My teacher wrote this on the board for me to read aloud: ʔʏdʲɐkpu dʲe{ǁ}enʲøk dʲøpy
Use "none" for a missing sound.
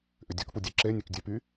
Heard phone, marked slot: ǁ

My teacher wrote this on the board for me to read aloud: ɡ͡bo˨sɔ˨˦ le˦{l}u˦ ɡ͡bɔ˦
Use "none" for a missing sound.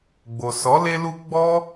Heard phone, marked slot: l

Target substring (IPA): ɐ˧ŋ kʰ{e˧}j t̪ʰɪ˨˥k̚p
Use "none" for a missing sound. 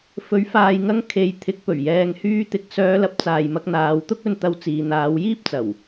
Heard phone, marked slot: e˨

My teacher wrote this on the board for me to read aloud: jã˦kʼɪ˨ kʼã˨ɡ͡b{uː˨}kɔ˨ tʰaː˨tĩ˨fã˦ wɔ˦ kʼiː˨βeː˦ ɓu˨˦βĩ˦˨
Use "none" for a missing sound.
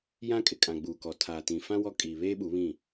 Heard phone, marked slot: uː˨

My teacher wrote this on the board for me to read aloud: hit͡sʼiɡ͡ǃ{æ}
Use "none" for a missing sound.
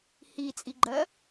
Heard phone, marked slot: ɜ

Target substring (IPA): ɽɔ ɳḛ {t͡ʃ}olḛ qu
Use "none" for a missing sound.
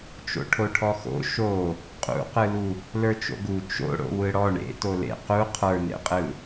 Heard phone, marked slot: t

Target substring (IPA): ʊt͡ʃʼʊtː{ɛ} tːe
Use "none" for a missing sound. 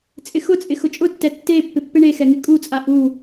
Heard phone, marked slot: ɛ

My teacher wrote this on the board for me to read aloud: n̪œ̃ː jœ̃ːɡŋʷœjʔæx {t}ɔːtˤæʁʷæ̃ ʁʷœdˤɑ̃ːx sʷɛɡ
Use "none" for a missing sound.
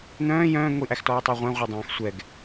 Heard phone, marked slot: t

